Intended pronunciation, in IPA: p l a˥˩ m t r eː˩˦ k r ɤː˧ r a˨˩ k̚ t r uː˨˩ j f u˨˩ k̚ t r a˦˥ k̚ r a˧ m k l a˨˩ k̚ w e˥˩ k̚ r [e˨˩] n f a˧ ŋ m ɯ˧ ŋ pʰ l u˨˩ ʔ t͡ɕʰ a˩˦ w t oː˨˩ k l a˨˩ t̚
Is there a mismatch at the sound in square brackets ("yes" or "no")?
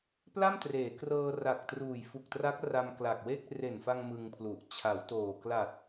no